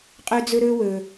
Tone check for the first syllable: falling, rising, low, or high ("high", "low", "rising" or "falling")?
high